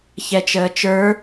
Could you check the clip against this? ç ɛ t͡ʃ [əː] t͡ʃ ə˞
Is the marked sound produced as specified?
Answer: yes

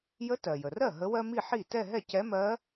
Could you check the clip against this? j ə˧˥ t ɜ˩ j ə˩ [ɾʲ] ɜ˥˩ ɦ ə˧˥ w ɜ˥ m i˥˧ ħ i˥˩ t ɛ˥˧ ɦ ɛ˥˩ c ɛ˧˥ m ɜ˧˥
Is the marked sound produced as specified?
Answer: no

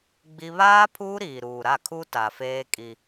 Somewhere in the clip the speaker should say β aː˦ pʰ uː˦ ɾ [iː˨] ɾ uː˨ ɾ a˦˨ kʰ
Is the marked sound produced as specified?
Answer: yes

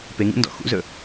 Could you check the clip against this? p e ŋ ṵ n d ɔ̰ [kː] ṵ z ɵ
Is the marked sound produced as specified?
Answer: no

